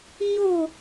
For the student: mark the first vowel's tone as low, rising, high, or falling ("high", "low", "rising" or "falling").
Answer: falling